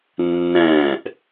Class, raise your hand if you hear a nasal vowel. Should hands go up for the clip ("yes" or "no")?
yes